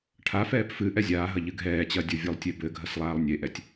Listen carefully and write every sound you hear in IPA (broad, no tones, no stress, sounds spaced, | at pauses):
ʈʰ a f ɛː p f ɨ ʔ ɛ zʲ aː ɦ ɐ ʎ ɨ ɡʱ ɛː t͡ɕ ɐ dʲ o vʲ o lˠ tʲ e b ɘ ɡʱ ɐ s lˠ aː lˠ nʲ e ʔ ɛ tʲ